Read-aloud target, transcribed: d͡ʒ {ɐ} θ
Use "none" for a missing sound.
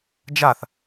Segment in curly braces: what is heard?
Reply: a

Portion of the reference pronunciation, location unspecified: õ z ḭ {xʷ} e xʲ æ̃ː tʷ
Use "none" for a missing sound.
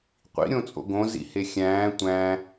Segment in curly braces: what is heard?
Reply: h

